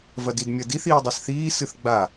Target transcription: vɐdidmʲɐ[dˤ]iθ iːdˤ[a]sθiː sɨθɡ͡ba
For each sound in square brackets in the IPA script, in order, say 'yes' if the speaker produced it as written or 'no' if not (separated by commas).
no, yes